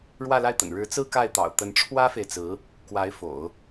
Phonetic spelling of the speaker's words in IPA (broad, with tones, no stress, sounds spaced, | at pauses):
ɻ w ä˥˧ l a˥˩ ɪ̯ t̪ ə̰˨˩ n ɻ ɻ̩˧˥ t͡s ɹ̩˥ k a˥˩ ɪ̯ t̪ ɑ̰˨˩ ʊ̯ t̪ ə˧˥ n ʈ͡ʂʰ w ä˥ f e˨ ɪ̯ t͡s ɹ̩˧˥ | k w a˧˥ ɪ̯ f o̰˨˩˦ ʊ̯